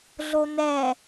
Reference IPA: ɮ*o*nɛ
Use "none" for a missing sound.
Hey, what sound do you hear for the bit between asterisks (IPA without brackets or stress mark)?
o